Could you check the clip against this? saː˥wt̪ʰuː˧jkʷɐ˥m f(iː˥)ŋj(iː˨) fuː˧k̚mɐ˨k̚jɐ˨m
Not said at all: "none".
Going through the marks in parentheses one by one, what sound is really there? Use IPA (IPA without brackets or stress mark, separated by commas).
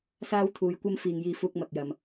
iː˨, iː˧